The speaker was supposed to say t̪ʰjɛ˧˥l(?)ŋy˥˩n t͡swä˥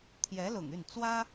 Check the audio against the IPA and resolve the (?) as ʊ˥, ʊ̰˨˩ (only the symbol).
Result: ʊ̰˨˩